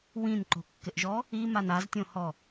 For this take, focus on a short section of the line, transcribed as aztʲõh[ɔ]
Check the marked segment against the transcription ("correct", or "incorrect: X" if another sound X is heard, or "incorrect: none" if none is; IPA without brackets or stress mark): correct